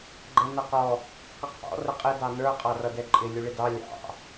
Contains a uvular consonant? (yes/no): yes